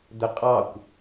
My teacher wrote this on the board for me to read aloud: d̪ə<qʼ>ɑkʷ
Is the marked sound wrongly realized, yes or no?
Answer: no